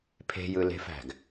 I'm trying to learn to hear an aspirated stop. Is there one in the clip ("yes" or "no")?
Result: yes